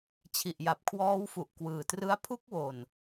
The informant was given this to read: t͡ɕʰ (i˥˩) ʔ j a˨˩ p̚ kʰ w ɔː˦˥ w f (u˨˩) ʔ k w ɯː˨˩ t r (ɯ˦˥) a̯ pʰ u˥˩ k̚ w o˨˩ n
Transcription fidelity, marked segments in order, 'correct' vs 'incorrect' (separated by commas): incorrect, correct, correct